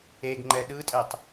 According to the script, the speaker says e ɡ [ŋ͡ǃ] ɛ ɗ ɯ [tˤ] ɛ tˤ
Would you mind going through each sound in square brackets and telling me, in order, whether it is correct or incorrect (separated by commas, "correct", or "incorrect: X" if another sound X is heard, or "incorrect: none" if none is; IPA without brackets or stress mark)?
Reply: correct, incorrect: tʼ